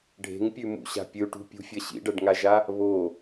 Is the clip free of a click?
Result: yes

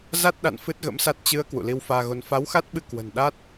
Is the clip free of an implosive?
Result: no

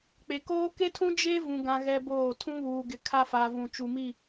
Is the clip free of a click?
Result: yes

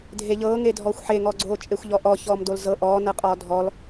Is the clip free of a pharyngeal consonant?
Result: no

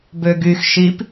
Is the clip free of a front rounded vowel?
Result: no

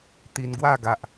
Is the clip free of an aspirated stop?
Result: yes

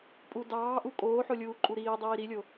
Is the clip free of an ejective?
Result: no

